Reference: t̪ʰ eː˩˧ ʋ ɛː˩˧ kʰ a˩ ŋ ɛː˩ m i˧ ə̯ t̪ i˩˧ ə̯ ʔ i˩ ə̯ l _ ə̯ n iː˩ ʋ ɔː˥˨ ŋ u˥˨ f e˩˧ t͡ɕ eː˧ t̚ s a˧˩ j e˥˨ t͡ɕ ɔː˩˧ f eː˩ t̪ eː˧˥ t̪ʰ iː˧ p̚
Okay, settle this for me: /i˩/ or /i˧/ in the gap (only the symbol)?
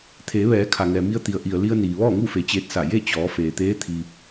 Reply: i˧